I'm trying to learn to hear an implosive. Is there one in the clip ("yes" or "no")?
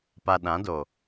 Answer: yes